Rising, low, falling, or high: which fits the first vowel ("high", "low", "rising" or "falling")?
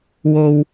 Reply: low